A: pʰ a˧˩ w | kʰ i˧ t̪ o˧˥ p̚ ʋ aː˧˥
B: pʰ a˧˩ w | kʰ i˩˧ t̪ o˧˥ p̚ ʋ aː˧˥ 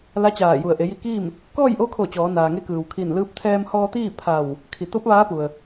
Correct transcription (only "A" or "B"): B